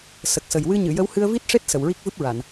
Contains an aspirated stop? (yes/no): no